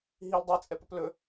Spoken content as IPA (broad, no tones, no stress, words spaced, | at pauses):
ɦil dˤit͡sʼɛpɵp lɵ